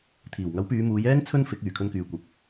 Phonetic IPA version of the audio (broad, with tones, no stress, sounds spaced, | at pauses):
t̪ʰ iː˨˩ w ŋ ɐ˨˥ w p yː˨˧ m uː˨˧ j ɛː˥ ŋ t͡sʰ ɵ˥ n f ɪ˨˥ k̚ yː˨˩ kʰ ɵ˧ n k yː˨ kʷ ɐ˨ p̚